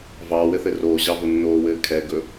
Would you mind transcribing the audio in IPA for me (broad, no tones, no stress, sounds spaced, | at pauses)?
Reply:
v ɑː w ɘ θ ɘ r oː ʑ ɑ v o nː oː w ɘː kʰ ɛ ɡ ɵ